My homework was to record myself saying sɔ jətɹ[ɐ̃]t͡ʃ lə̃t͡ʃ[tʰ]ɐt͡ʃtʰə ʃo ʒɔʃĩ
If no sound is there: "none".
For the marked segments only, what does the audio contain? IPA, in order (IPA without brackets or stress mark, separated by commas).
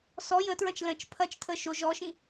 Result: ɐ̃, pʰ